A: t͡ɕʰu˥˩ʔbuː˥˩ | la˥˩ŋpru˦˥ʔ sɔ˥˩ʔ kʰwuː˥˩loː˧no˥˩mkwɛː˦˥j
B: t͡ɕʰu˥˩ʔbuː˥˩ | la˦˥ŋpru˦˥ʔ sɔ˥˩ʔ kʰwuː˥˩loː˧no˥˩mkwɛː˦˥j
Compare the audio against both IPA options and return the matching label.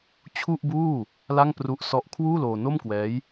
A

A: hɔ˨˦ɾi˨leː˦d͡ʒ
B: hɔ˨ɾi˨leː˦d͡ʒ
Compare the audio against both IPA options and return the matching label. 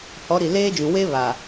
A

